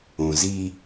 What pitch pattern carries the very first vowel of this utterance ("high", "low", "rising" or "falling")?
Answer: low